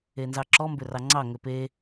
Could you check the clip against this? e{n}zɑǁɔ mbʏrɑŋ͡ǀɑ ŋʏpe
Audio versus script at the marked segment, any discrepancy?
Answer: no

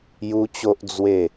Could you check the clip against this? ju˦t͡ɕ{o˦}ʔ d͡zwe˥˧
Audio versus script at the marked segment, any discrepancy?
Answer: no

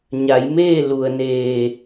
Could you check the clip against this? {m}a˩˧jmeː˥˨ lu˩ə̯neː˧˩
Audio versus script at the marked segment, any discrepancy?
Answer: yes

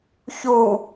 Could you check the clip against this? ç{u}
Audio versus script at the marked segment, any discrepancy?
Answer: no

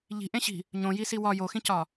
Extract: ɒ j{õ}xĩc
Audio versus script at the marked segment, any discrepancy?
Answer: yes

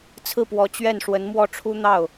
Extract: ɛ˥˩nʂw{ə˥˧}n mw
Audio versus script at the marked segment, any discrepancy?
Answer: yes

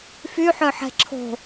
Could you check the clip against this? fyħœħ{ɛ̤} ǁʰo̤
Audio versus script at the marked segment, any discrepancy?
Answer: no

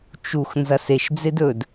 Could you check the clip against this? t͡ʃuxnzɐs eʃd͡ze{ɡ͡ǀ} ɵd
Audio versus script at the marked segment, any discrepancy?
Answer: yes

